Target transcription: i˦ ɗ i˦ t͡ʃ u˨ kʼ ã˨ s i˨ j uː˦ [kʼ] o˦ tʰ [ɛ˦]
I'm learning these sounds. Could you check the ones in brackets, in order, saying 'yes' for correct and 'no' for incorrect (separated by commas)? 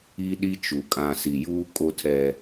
yes, yes